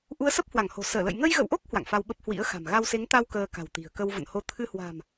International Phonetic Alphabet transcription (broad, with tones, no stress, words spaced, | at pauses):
ʔu˨˦ə̯sə˦˥p̚hwa˧˩ŋho̤˨˩ səː˧˩lə̰˧˨j ŋə˧jɣə̰˧˨wʔo˦˥k̚ hwa̰˧˨ŋfa˧wɓə˦˥p̚ hwḭ˧˥ə̯xa̤˨˩m ɣa˧wse˨˦ŋt̪a˧w kəː˧ka̤˨˩wt̪i̤˨˩ə̯ kə˧wvə̰˧˨nho˧ t̪ʰɨ˧hwa̤˨˩m